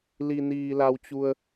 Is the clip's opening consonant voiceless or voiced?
voiced